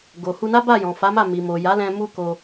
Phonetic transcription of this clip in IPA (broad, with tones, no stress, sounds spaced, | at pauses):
ɡ o˨ h u˧ n a˦ b a˦˨ j ɔ̃˨ f a˨˦ m a˦˨ m i˨ m o˨ j a˨˦ l ɛ̃˧ m u˦ k o˧